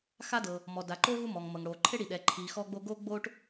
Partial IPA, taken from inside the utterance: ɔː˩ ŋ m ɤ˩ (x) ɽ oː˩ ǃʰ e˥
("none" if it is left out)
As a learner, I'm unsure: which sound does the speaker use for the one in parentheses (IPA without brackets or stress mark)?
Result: ŋ